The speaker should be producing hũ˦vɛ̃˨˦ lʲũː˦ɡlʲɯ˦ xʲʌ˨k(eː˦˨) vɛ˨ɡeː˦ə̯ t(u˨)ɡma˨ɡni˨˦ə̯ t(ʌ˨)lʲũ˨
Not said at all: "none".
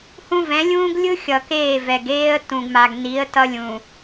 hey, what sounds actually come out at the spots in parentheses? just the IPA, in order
eː˦˨, ũ˨, ʌ˦

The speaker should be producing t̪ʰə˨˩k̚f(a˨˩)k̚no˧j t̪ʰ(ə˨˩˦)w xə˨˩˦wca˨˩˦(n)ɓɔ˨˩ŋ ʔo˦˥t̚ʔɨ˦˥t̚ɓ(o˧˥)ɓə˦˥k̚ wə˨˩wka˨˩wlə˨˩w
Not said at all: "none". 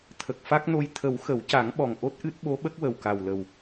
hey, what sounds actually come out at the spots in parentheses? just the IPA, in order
a˦˥, ə˨˩˦, ŋ, o˧˥

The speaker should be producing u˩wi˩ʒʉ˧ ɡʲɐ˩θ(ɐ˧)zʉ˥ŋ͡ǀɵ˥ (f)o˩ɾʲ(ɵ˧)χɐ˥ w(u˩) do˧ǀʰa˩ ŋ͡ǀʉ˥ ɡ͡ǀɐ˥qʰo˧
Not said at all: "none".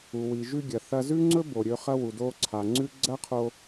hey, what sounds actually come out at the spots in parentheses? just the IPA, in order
ɐ˧, b, ɵ˧, u˩

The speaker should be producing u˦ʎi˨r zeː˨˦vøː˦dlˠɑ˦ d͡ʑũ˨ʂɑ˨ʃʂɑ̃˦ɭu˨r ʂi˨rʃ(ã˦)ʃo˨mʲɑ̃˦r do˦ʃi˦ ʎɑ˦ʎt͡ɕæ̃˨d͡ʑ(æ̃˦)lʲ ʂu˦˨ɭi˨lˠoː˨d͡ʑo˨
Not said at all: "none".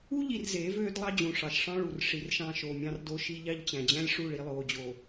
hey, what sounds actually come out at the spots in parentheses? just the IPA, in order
ɑ̃˦, æ̃˦

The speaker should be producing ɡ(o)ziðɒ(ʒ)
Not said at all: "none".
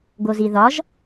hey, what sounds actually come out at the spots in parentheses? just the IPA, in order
o, ʒ

